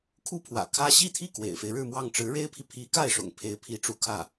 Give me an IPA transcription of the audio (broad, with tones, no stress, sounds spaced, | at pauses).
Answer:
kʰ u˥ pʰ w ä̰˨˩ kʰ ä˥ ɕ i˥ t̪ʰ i˥˩ k w ḛ˨˩ ɪ̯ f e˦ ɪ̯ ɻ ɻ̩˥˧ m w ɑ˥˩ ŋ ʈ͡ʂ ɻ̩˧˥ ɻ e˥ ɪ̯ pʰ i˨ pʰ i˧˥ k a˥˩ ɪ̯ ʂ ʊ̰˨˩ ŋ pʰ e˧˥ ɪ̯ pʰ i˧˥ ʈ͡ʂ u˧˥ kʰ ä˥˩